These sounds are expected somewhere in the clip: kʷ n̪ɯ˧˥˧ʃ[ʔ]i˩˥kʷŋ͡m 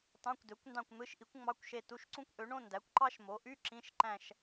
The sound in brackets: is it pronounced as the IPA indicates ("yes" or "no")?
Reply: yes